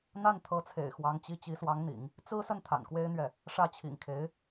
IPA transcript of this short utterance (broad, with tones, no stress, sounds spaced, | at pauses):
n̪ a˥˩ n t̪ʰ ɤ˧˥ t͡sʰ ḛ˨˩ ɪ̯ x w ɑ˧˥ ŋ t͡ɕ i˥˩ t͡ɕ i˧˥ s w ɑ˧˥ ŋ n̪ ḭ˨˩˦ ŋ | t͡s ɹ̩˥ s ə˥˩ n t̪ʰ a̰˨˩ n k w e˥ ɪ̯ n̪ ɥ ɛ˥˩ | ʂ ä˥˩ t͡ɕʰ ḭ˨˩ ŋ kʰ e˧˥ ɪ̯